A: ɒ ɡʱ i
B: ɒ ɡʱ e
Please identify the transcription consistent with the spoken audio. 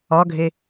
B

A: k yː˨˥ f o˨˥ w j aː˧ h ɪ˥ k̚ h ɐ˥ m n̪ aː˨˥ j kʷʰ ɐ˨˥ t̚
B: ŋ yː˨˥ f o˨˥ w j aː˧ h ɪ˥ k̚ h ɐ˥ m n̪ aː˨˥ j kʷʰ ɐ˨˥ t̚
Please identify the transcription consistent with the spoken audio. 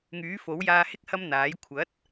B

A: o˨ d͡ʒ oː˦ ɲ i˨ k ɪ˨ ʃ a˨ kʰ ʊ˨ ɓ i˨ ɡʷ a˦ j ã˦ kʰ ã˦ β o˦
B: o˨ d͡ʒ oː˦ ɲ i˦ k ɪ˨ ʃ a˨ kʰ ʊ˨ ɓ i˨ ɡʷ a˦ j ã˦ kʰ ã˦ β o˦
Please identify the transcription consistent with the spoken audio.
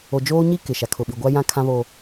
B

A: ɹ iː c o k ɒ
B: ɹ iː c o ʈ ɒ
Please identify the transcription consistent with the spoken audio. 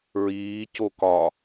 A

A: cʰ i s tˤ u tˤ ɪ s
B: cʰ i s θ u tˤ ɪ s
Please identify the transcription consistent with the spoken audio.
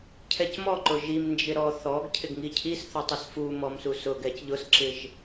B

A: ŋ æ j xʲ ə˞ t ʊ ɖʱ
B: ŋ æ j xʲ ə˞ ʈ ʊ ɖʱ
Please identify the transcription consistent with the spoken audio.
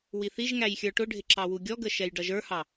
B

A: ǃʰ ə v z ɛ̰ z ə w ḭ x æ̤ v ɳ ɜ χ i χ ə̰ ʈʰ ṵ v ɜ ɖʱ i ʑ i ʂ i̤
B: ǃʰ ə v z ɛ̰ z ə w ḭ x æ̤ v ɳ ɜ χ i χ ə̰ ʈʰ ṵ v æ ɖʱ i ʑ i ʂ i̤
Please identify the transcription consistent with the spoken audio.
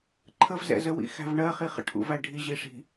B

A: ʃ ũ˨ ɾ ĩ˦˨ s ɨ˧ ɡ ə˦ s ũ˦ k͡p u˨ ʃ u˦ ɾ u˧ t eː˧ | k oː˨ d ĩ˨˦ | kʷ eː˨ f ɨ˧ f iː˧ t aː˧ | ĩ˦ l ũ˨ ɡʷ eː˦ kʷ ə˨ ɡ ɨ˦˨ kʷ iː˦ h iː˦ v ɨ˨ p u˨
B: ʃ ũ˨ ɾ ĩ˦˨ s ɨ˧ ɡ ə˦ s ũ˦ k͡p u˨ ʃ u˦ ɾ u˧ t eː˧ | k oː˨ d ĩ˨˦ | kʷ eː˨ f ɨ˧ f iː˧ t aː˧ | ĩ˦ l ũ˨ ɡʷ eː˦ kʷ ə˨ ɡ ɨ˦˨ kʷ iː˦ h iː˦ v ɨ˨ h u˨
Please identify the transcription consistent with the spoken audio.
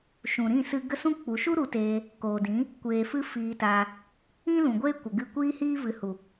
B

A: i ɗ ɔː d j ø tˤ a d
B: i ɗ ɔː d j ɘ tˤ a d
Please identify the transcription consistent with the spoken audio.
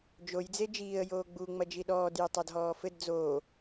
B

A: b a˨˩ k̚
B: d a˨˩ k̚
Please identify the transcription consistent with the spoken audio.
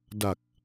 B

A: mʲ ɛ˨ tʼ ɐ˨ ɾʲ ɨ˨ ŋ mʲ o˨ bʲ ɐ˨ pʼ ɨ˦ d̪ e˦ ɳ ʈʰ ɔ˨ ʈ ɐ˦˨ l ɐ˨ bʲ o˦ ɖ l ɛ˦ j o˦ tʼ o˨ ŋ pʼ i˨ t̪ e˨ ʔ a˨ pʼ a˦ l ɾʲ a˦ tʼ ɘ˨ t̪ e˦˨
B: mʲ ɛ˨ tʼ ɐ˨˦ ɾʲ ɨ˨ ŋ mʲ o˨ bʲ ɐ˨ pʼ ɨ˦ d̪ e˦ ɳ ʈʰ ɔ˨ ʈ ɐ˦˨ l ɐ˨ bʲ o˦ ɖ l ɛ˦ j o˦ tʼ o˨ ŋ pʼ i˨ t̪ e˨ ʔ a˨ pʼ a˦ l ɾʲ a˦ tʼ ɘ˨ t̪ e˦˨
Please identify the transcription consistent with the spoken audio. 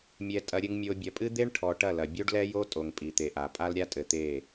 A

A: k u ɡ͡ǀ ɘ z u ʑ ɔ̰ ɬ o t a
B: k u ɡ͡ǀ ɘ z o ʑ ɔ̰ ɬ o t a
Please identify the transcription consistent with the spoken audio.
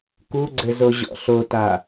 B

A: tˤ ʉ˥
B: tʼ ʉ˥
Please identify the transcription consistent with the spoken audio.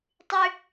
A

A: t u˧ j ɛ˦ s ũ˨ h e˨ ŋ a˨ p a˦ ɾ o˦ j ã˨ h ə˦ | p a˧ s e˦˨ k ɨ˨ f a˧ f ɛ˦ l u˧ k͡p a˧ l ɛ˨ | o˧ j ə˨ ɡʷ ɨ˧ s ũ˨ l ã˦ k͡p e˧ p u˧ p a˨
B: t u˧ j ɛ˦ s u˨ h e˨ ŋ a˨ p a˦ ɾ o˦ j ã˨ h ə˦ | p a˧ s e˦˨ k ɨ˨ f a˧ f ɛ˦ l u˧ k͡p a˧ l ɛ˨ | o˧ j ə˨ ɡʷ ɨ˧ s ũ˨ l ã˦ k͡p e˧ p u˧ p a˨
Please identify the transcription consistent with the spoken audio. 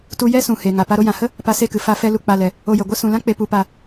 A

